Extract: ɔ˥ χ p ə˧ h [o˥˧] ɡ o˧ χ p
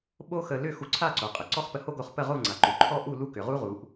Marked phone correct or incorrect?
incorrect